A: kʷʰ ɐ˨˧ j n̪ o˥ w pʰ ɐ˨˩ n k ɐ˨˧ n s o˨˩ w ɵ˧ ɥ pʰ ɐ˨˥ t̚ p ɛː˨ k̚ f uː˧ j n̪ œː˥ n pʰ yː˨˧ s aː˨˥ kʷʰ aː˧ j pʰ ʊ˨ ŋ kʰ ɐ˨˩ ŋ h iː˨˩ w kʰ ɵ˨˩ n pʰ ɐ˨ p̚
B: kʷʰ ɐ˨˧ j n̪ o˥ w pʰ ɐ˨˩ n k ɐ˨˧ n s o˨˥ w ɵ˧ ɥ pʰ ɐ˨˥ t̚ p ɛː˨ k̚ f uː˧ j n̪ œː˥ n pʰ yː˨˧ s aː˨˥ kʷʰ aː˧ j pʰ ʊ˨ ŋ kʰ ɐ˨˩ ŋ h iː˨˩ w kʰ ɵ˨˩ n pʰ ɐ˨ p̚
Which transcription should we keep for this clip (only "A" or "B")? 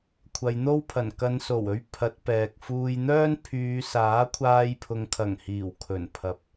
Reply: A